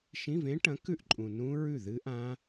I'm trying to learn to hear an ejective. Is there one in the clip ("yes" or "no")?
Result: yes